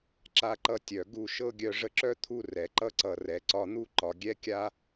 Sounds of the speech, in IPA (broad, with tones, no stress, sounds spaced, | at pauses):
ǁ a˧ ǃ ʌ˧ tʲ œ˨ ɡ u˦˨ ʃ ɤ˦ ɡʲ œ˧ ʐ ə˧ ǁ œ˦ t̪ʰ u˧ r ɛ˨ ǃ ʌ˧ ǀ ʌ˨ r ɛ˨ ǀ ɒ˧ n̪ u˦ ǃ ɒ˨ ɡʲ ɛ˦ kʲ a˦